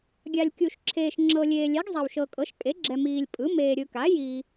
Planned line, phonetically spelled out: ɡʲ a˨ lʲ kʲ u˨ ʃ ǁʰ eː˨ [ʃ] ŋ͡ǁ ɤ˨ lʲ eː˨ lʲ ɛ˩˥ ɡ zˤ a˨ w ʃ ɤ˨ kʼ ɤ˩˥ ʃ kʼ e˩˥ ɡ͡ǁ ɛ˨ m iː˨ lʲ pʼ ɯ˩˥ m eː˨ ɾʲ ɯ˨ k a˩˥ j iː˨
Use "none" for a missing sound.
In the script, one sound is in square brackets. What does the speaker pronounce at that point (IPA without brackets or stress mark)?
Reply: ʃ